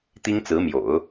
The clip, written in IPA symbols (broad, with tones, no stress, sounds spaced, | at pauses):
t̪ i˥ ŋ t͡s ɹ̩˧˥ m j o̰˨˩˦ ʊ̯